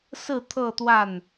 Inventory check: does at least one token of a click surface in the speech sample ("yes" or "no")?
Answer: no